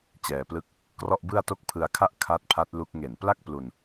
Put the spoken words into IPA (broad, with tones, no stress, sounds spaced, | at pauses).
t͡ɕ ɛː˧ p l ɯ˥˩ k̚ | k r ɔ˥˩ ʔ b ɯ˥˩ a̯ t o˥˩ k̚ pʰ ɯ˧ a̯ kʰ a˦˥ ʔ kʰ a˦˥ t̚ pʰ a˦˥ t̚ l u˦˥ k̚ ŋ e˨˩ n p l a˥˩ k̚ p l u˧ n